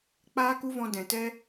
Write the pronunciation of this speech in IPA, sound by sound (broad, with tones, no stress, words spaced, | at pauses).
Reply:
k͡paː˦ku˦vɔ̃˧ dɛ̃˨tɛ˦